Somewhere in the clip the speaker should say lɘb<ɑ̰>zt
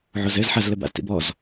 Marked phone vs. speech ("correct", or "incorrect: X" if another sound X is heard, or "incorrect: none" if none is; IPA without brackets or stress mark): incorrect: a̰